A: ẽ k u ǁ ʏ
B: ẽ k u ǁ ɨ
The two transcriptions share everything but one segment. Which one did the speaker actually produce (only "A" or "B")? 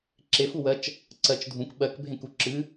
B